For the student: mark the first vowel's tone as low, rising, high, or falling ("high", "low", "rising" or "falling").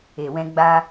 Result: low